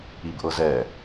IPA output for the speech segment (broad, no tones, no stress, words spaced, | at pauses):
ibʔɤzɛ